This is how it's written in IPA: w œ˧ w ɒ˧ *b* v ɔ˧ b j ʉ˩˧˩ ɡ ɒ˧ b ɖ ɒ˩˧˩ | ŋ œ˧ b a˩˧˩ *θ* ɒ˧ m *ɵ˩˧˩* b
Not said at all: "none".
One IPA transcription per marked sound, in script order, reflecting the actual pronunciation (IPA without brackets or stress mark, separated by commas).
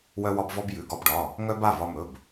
b, v, ɵ˩˧˩